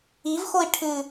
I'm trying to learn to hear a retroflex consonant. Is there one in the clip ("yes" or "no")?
yes